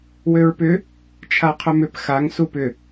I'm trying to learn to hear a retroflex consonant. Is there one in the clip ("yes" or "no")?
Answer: no